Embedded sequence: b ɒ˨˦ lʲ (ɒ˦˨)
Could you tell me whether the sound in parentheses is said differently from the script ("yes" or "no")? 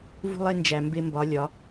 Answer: yes